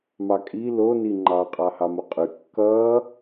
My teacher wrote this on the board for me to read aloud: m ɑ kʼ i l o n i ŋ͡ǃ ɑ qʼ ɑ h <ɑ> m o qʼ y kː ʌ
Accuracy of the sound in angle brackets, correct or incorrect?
correct